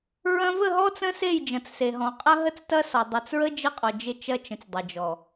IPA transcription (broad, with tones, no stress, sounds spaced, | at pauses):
ɹ ɐ̃˦ v ə˦˨ ɦ ɔ˦ t͡s ə̃˦ s e˦˨ j d͡ʒ ɐ̃˨ t͡s s e˨ ɦ ɔ̃˨ qʼ ɐ˦ ɦ ə˦ t͡s t ɐ˦ s ɔ˨ dˤ ɐ˨ t͡s ɹ ə˦ d͡ʒ ə˦ qʼ ɔ˨ d͡ʒ ɪ˦˨ t͡ʃ ɐ˦ t͡ʃ ə̃˨ t͡s dˤ ɐ˨ d͡ʒ ɔ˨